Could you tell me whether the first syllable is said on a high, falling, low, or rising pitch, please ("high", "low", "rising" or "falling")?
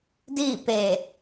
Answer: falling